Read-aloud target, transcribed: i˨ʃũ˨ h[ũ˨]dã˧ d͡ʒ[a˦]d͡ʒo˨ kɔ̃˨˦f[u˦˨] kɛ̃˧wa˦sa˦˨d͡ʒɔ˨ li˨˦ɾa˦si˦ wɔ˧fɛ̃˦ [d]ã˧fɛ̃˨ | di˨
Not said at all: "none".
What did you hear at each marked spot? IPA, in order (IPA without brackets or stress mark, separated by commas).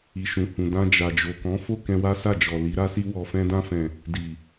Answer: ũ˨, a˨, o˦˨, d